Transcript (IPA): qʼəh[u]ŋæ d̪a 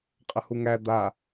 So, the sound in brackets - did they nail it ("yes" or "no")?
yes